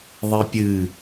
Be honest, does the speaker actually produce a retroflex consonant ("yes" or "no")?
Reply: no